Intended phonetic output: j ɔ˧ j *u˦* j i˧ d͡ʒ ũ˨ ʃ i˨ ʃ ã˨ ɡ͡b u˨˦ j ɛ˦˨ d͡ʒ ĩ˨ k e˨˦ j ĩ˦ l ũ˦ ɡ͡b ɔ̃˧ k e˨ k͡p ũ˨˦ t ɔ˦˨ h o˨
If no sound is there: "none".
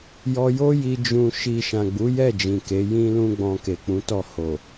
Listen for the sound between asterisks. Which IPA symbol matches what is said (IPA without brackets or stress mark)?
o˦